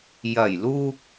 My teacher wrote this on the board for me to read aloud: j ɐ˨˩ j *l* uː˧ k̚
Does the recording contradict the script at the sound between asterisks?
no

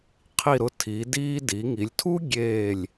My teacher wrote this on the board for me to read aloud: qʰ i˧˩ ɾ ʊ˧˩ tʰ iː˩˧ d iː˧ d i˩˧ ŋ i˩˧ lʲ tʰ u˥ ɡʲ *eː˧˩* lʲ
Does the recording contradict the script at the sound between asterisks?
no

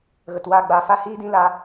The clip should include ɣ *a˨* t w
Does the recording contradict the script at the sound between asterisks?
yes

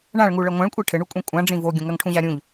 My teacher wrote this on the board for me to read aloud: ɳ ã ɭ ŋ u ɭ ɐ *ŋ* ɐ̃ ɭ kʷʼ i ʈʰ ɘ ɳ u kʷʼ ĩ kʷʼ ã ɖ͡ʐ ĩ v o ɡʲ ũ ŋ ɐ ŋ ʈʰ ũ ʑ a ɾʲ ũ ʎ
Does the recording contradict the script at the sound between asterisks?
yes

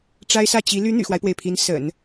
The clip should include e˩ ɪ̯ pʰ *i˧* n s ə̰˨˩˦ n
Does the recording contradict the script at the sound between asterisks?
yes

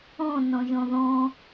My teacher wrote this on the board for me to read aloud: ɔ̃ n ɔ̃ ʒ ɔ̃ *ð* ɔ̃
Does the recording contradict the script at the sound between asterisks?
no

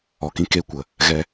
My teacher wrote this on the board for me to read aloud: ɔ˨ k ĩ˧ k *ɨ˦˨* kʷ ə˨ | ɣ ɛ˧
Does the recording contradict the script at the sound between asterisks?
yes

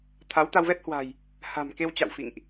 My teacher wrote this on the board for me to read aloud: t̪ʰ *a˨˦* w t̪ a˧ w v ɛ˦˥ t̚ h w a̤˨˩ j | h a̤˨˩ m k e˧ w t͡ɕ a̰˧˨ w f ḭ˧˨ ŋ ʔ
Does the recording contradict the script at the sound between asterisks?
no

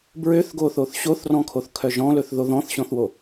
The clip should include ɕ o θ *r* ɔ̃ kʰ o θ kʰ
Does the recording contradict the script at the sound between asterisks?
no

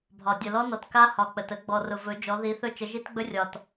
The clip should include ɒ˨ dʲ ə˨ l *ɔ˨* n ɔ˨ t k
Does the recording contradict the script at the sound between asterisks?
yes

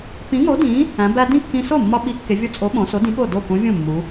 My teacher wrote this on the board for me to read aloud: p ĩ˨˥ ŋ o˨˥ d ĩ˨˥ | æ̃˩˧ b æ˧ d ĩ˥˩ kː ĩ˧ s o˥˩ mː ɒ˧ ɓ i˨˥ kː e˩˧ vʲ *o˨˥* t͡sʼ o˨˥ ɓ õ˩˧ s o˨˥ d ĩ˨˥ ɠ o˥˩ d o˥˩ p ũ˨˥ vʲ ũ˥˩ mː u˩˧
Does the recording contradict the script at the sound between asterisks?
yes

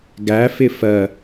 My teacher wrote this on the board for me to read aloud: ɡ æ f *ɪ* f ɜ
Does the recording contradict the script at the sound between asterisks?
no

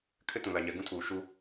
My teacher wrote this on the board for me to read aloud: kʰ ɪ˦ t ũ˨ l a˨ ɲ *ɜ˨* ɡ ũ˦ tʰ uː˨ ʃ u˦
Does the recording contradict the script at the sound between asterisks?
yes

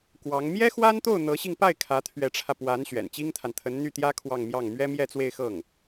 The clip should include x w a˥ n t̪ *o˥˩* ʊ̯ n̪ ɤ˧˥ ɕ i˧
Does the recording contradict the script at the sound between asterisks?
no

